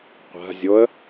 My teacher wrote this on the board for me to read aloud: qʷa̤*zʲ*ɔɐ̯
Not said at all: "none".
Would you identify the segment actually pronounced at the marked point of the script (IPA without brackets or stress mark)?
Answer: zʲ